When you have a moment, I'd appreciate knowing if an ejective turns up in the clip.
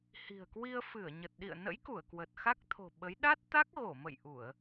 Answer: no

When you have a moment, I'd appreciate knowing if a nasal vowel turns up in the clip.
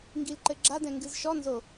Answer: yes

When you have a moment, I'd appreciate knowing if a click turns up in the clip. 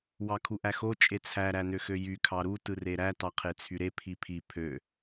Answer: no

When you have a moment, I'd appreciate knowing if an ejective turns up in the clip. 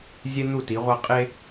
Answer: yes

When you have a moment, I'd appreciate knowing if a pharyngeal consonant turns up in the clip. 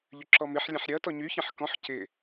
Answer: yes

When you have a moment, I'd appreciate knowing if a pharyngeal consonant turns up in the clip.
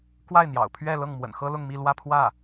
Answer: no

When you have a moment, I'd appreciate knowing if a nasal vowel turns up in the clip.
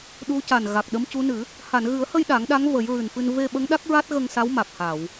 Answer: no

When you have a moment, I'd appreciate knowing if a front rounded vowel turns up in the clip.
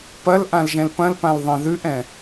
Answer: no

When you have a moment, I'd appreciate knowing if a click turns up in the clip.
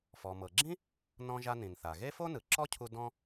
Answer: yes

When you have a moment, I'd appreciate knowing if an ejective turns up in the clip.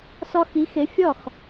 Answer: no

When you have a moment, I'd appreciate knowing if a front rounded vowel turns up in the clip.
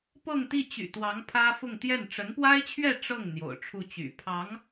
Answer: yes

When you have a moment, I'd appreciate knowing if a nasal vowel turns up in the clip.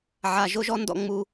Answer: no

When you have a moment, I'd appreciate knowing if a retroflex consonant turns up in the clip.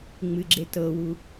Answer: no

